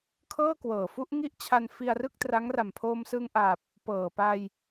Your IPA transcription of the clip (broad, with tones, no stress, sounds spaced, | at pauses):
kʰ ɤː˥˩ k w ɤː˨˩ f u˥˩ ʔ ŋ i˥˩ ʔ t͡ɕʰ a˧ n f i˧ a̯ r ɯ˥˩ k̚ t r a˦˥ ŋ r a˨˩ m pʰ oː˧ m s ɯ˧ ŋ ʔ a˨˩ p̚ | p ɤː˨˩ p a˧ j